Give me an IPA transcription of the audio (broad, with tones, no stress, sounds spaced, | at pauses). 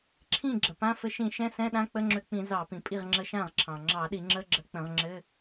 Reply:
ǁʰ ĩ˥˩ ɡ͡ǁ ə˩ p ã˧˥˧ f ɘ˧ ʃ ĩ˧˩˧ ʃ ɛ̃˧˥˧ s ɛ̃˧˥˧ ɗ ã˧˥˧ k͡p ə˧˥˧ ŋ͡ǁ ø˧ k͡p ĩ˧˩˧ z ɑ˧˩˧ p ĩ˩ pʼ i˥˩ ʁ ŋ͡ǁ ə˧ ʃ ã˥˩ ʁ ǁʰ ɑ̃˩ ŋ͡ǁ ɑ˧˩˧ ɗ i˧˩˧ ŋ͡ǁ ə˧˥˧ ɡ͡ǁ ə˧˩˧ k͡p ə̃˧˩˧ ʁ ŋ͡ǁ ɘ˧˥˧